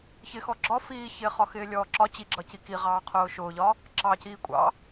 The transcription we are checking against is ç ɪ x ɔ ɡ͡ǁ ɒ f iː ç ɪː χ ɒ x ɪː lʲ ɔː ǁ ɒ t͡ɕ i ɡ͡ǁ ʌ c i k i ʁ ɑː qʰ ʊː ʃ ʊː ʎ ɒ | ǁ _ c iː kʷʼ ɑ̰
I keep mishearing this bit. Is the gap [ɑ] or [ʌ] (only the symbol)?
ɑ